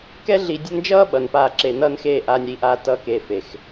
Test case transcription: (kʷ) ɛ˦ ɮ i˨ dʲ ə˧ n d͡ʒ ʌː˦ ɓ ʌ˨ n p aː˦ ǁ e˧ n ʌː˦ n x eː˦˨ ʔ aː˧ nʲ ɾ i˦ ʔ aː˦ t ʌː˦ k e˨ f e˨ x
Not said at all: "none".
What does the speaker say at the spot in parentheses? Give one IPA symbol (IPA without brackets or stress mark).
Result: k